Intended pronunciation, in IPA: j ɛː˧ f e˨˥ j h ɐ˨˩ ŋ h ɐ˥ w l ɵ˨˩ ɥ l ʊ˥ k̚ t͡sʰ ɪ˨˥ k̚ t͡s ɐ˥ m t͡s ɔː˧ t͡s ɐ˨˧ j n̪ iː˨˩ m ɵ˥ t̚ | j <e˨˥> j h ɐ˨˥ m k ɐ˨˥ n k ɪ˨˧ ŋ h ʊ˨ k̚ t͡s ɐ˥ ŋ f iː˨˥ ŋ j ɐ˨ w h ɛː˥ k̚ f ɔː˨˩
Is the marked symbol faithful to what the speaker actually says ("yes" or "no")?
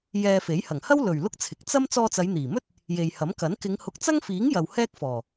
no